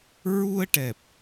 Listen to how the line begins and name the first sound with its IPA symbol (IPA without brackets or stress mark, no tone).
ɹ